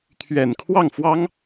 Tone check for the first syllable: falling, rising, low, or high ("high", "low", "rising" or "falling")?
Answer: low